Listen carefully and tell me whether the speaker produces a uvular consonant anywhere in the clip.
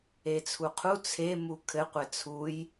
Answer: yes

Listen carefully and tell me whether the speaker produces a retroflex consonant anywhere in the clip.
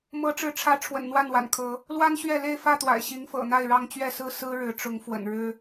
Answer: yes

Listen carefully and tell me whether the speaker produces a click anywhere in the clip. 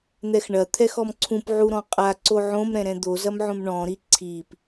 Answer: yes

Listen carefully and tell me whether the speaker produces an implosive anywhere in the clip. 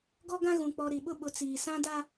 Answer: yes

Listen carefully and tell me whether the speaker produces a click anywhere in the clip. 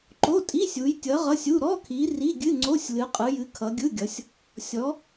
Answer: yes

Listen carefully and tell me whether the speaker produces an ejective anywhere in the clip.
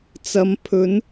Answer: no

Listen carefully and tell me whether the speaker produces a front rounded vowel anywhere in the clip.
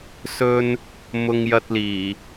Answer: no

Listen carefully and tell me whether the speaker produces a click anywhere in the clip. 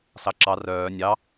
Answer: yes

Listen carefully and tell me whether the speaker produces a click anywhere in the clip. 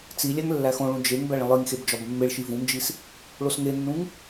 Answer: no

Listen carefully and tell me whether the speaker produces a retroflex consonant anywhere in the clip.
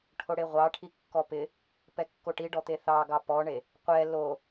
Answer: yes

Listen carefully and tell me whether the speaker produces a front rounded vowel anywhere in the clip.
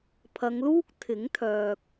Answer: yes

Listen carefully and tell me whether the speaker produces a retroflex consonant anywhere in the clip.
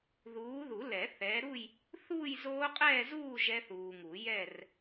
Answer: no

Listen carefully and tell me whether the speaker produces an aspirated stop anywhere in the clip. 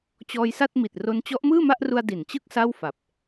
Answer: no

